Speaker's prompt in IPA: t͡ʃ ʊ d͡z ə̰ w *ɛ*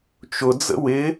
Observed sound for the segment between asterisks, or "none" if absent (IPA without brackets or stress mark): ɪ